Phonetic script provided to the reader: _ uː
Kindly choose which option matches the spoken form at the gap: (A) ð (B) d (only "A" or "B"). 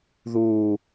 A